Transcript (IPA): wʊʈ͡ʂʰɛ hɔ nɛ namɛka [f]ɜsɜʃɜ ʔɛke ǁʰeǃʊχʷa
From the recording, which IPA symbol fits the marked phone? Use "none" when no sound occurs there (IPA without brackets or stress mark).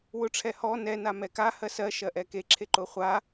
h